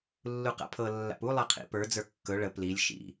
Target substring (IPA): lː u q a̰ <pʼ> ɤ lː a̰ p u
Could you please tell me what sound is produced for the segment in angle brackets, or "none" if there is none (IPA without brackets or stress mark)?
pʰ